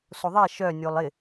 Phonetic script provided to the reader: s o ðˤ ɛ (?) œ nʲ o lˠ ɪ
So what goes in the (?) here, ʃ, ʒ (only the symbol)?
ʃ